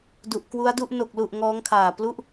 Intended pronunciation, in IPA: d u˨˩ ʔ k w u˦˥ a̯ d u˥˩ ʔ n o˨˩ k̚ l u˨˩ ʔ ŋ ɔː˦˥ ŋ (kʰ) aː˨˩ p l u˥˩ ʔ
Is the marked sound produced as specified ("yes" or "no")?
yes